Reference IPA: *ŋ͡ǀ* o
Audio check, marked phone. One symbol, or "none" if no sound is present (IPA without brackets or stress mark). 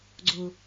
ɡ͡ǀ